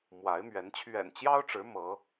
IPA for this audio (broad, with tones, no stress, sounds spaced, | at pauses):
m w a˨˦ ɪ̯ m ɥ ɛ˨˦ n t͡ɕʰ ɥ ɛ̰˨˩ n t͡ɕ j ɑ˦ ʊ̯ ʈ͡ʂ ɻ̩˨˦ m ɤ˨˦